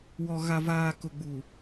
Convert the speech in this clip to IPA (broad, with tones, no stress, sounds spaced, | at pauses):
w ɔ˨ ɣ a˨ v aː˨ k ʊ˨ ɡ͡b u˨